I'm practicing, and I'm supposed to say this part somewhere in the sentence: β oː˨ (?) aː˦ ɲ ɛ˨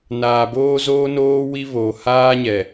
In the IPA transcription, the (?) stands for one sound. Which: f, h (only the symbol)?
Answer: h